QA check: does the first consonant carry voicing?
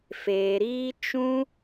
no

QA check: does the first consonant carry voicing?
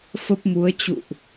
no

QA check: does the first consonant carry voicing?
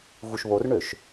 yes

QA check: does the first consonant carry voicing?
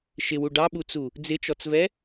no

